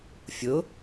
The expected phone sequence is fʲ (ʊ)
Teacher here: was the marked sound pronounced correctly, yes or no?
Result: yes